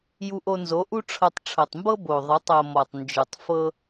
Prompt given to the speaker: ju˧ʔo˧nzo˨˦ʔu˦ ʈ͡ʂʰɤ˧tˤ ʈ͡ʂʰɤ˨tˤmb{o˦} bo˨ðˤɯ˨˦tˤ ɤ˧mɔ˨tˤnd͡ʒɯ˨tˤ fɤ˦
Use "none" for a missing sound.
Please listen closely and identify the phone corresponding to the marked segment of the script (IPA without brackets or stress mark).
ɤ˦